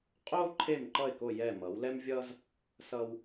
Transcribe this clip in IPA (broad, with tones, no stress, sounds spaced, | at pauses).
qʼ oː˥ ǃʰ e˥˩ m ǃ ʌ˥˩ ɪ̯ k o˥˩ j ɛ˥˩ m ʌ˩˥ w l ɛ˥ m vʲ ʌː˥ z | s ʌː˧ w